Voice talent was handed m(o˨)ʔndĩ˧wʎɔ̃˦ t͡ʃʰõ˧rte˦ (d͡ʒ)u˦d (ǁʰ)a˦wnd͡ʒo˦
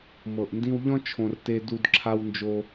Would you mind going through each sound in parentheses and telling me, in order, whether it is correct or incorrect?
incorrect: ɤ˨, incorrect: d, correct

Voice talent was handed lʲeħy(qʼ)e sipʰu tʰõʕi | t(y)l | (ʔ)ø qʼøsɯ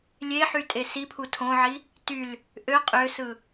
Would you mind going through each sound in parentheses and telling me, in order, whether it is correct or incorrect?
incorrect: tʼ, correct, correct

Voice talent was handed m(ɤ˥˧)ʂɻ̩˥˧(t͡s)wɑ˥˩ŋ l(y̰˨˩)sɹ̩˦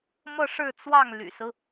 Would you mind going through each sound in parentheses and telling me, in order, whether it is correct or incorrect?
correct, correct, correct

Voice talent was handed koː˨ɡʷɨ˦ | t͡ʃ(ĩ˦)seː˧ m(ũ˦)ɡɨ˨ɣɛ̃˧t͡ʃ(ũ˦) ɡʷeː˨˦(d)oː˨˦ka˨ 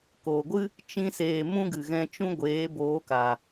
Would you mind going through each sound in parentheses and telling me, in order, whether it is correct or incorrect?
correct, correct, correct, incorrect: b

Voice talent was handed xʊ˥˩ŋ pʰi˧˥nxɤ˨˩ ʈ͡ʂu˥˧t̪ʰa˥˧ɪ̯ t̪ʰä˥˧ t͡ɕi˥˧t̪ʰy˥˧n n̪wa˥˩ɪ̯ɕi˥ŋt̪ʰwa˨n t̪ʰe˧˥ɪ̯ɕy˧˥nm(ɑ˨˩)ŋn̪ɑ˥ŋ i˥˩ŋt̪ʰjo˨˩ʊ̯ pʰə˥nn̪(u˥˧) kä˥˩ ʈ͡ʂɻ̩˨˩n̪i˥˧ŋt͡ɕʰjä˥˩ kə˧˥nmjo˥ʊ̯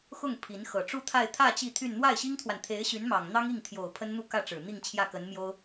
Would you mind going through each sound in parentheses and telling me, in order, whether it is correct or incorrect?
correct, correct

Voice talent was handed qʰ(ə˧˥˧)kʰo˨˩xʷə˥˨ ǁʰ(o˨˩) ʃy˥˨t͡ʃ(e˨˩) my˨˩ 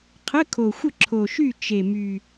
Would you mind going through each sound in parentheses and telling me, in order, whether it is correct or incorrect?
correct, correct, correct

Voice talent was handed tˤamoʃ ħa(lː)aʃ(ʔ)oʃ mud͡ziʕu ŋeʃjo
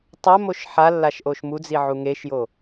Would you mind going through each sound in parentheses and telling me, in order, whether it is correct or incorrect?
correct, correct

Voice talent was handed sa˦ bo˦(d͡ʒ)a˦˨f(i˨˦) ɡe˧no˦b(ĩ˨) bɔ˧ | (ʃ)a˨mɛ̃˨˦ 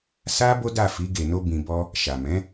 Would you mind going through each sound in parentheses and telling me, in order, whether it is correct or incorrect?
incorrect: d, correct, incorrect: ĩ˧, correct

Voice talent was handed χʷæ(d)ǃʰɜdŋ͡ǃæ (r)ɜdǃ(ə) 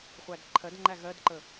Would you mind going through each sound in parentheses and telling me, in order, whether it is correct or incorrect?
correct, incorrect: ɣ, correct

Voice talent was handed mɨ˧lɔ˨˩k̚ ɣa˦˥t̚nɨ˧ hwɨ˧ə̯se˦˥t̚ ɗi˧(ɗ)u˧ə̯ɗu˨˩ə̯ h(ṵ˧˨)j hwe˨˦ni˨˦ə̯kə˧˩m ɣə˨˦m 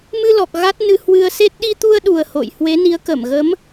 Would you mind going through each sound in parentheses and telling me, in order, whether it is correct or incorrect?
incorrect: t̪, incorrect: o̰˧˨

